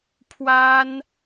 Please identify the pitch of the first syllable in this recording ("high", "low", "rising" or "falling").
high